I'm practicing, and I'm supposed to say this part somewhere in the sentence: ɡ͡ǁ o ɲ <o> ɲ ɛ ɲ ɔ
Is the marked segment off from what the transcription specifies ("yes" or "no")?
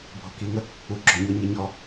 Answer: no